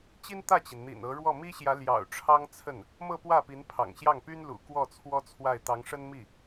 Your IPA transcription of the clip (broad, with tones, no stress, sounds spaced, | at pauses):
t͡ɕ i˥ n t̪ ä˥˩ t͡ɕ i˩ n n̪ ḭ˨˩ n ɤ˧˥ ɻ w ɔ˥˩ m i˥ ɕ j ä˧˥ l j ɑ̰˨˩ ʊ̯ ʈ͡ʂʰ ɑ˥ ŋ t͡sʰ ə˥˩ n | m ɤ˥˧ p w ä˥˩ p i˧˥ n pʰ ɑ̰˨˩ ŋ ɕ j ɑ˥˩ ŋ p y˥ n l ṵ˨˩ k w ɔ˥˩ t͡sʰ w ɔ˥ t͡sʰ w a˥˩ ɪ̯ t̪ ɑ˧˥ ŋ ʂ ə˥ n m i˥˩